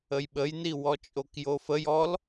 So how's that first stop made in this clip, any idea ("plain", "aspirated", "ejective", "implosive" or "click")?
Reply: implosive